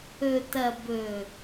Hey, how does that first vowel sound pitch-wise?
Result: low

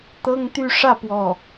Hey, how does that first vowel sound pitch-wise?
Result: high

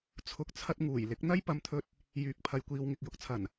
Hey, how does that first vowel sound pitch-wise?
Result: low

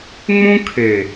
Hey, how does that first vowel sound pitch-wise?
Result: high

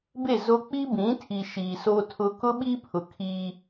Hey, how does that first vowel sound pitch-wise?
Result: falling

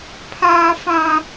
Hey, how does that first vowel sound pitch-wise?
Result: high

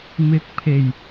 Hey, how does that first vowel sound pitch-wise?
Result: rising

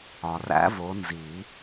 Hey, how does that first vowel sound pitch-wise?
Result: low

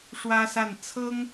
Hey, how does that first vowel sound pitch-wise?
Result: high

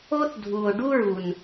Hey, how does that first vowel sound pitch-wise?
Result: high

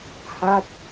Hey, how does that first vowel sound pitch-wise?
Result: falling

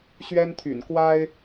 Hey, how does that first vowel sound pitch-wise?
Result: high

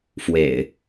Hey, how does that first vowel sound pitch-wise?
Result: low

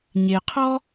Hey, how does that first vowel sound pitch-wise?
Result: low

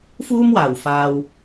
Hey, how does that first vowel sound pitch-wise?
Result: high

